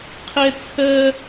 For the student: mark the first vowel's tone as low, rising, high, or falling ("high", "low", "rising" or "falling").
high